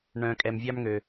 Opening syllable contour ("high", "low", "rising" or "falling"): low